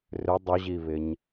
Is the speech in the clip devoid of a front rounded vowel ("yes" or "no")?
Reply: no